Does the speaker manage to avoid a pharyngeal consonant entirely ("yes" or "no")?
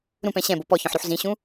no